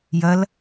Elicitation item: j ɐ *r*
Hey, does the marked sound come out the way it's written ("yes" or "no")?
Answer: no